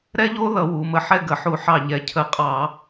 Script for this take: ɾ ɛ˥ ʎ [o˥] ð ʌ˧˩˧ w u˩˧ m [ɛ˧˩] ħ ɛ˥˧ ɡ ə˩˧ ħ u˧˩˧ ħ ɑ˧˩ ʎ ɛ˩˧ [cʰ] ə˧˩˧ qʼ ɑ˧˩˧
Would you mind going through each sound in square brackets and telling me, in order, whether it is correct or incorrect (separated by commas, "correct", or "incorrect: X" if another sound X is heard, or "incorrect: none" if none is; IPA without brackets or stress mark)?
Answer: correct, incorrect: ə˧˩, correct